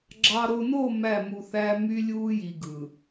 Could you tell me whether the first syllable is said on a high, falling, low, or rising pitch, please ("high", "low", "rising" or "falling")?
low